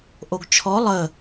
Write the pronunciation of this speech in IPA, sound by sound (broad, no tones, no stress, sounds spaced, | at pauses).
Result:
ʔ o ɡ t͡ʃʰ ɔ lˠ ə